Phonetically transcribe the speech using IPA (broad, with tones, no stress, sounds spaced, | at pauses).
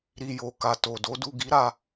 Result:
ɾ i˨ j o˨ k a˨ t o˨ d o˨˦ d u˦˨ ɡ i˨˦ ɾ a˧